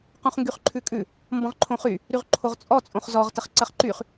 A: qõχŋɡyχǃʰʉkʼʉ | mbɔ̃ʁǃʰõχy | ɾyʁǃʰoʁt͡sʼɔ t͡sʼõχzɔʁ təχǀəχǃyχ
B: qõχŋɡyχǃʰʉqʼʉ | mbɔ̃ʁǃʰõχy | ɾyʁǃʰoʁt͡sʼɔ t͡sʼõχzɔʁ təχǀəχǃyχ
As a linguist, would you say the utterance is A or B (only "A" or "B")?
A